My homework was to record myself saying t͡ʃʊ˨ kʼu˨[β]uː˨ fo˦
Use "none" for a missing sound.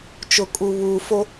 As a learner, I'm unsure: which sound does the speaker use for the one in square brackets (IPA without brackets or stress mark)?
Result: β